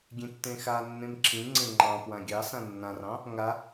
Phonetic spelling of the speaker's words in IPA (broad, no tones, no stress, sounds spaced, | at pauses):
ɡʲ ẽ tː ẽ x a nː ẽ m ǁʰ ĩ ŋ͡ǀ ẽ ŋ͡ǃ ɑ̃ p w ã ɡʲ ɑ s ã nː ã r ɑ̃ | ŋ a